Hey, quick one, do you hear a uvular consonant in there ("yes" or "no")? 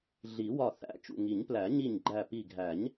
no